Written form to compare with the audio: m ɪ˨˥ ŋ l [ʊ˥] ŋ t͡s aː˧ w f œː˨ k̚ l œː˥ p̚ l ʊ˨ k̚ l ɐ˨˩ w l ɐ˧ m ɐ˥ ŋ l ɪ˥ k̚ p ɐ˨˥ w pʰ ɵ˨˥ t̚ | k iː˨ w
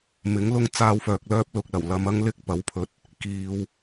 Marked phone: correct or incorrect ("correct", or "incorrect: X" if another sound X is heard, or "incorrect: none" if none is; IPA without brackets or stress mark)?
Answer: correct